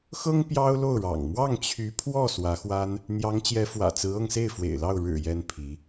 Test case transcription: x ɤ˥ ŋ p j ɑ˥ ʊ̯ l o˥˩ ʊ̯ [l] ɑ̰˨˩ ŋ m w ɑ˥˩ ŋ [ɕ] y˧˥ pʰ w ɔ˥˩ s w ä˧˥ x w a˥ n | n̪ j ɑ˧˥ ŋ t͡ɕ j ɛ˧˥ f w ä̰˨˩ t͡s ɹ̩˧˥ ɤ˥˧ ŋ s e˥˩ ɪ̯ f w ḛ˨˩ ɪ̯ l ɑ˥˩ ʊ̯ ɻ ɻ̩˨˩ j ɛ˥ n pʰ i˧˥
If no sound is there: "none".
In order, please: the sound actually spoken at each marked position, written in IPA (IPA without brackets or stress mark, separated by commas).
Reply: ɻ, t͡ɕʰ